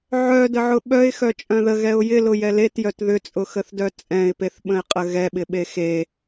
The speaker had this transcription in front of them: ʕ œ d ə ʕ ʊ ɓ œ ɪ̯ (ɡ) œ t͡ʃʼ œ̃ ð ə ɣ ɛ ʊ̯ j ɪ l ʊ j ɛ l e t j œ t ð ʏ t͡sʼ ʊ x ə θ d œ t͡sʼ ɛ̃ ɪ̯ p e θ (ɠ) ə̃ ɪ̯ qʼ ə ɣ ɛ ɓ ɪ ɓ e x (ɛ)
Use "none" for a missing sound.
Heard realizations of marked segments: x, ɓ, e

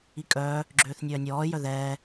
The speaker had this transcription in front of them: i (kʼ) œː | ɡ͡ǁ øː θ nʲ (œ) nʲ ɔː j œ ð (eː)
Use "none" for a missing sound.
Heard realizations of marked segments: kʼ, œː, ɛː

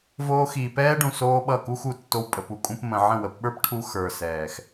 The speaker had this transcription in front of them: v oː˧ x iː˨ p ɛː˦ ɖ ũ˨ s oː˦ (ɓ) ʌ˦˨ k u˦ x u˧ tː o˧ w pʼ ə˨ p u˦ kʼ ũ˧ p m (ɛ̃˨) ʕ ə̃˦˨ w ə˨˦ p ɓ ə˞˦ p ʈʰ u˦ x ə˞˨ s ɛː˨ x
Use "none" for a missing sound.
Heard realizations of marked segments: ɓ, ə̃˨

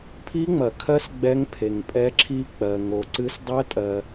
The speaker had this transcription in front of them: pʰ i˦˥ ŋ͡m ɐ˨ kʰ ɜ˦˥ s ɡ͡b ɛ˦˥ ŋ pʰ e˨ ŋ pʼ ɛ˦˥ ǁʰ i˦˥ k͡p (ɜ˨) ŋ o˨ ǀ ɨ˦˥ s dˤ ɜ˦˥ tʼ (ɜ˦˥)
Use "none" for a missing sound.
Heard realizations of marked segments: ɜ˨, ɜ˨

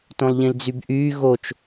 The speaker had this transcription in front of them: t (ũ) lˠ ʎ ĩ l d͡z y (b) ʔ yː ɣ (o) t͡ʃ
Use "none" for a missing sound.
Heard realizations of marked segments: õ, b, o

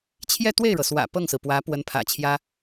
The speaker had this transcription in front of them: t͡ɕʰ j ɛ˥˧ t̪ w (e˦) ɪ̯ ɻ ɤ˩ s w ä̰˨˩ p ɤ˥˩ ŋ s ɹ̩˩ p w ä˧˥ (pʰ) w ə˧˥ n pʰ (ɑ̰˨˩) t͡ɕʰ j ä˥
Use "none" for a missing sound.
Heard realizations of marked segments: e˥˩, p, ä̰˨˩

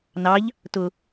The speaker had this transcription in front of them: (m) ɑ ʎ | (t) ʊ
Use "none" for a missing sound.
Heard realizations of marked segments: n, t

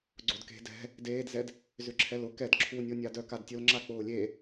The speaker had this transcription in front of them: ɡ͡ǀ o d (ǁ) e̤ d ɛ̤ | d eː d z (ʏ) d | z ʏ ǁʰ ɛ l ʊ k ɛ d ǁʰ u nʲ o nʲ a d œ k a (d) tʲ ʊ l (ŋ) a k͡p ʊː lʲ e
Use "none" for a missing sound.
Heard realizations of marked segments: k, ɛ, d, ŋ͡ǁ

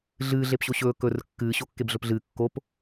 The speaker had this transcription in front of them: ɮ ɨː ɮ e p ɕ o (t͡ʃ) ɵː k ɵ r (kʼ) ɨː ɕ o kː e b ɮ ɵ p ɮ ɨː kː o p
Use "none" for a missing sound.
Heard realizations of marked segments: ɕ, kː

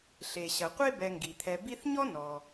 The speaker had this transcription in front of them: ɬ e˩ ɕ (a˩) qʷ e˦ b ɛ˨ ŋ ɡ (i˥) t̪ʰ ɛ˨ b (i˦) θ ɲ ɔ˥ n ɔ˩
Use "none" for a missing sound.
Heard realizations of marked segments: ɐ˩, i˩, i˦

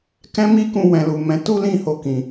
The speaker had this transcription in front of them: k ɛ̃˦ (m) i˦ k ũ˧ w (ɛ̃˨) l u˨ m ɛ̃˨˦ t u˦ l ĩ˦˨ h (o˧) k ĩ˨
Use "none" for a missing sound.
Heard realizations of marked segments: m, ɛ̃˨, o˧

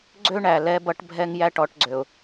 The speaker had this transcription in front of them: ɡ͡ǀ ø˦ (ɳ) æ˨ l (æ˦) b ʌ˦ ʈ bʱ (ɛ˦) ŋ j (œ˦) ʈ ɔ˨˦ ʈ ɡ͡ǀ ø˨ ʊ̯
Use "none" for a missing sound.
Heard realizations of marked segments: ɳ, ɛ˦, ɛ˦, æ˦

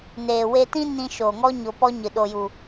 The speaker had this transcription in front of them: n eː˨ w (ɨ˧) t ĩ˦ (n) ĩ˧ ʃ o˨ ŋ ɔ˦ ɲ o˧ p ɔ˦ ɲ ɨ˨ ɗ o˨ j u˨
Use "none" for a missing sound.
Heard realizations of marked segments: e˧, n

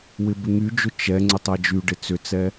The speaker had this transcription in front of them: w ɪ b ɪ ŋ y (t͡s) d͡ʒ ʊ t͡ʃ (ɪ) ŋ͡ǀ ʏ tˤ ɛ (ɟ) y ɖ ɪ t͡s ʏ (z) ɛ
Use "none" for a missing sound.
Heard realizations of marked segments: none, ɛ, d͡ʒ, t͡s

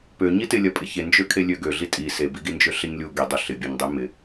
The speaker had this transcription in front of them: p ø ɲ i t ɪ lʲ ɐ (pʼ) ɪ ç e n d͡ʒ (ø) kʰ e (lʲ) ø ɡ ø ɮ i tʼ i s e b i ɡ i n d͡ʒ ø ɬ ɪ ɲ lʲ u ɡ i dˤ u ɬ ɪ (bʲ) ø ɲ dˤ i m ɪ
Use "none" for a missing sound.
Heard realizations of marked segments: pʼ, ø, lʲ, bʲ

